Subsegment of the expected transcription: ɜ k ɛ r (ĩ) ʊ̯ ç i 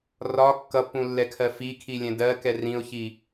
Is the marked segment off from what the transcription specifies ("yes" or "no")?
no